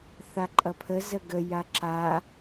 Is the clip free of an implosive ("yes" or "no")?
yes